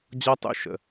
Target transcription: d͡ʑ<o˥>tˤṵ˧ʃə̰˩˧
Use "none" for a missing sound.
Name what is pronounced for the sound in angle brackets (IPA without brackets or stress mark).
ɔ˥